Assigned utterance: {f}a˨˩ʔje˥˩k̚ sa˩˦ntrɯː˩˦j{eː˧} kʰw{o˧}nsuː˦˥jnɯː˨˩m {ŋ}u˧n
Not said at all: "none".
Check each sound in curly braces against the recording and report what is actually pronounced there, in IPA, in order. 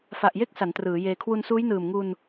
f, eː˧, u˧, ŋ

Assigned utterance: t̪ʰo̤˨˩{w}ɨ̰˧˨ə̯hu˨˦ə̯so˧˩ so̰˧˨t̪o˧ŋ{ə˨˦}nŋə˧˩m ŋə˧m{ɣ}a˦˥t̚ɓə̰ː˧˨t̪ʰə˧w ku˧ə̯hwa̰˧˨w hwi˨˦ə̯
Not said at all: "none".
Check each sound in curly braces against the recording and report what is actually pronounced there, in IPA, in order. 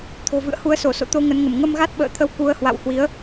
v, ə˨˦, ɣ

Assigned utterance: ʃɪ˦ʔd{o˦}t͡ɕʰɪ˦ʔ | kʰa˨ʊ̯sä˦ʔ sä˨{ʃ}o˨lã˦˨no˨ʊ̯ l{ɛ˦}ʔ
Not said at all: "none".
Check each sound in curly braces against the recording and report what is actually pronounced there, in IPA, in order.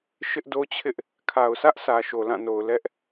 o˦, ʃ, ɛ˦

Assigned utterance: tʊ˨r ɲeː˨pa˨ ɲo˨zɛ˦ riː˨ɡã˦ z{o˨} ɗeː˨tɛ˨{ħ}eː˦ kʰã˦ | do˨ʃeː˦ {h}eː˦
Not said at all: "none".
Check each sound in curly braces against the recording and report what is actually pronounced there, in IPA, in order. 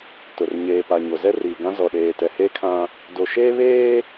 ɔ˨, h, β

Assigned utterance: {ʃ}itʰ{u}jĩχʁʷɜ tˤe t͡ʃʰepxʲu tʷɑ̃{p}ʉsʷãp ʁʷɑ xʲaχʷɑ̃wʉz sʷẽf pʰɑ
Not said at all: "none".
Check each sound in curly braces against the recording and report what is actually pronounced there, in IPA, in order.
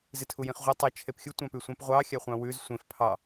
z, u, p

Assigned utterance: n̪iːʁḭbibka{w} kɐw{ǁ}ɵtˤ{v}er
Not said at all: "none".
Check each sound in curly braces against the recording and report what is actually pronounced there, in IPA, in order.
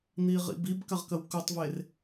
ʁ, k, v

